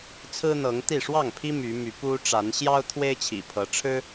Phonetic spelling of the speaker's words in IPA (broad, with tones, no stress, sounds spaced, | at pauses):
t͡sʰ ɹ̩˦ n̪ ɤ˨˦ ŋ t̪ i˥˨ ʂ w ɑ˥˨ ŋ pʰ i˦ m y˨˦ m y˨˦ p u˦ ʈ͡ʂ a˨˦ n ɕ j ɑ˦ ʊ̯ t̪ʰ w e˦ ɪ̯ t͡ɕʰ ḭ˨˩ pʰ ɤ˨˦ ʈ͡ʂʰ ɻ̩˦